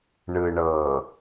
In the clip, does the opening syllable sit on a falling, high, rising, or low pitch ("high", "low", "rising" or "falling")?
low